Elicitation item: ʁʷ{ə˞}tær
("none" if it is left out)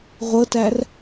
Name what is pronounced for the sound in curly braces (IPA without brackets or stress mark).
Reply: ɤ